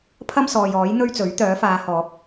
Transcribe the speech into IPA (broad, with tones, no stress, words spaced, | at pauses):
pʰɐ˥m sɔː˨jɔː˨˥j n̪ɵ˥ɥt͡sɵ˨˥ɥ t̪œː˨˥faː˨˧hɔː˨˥k̚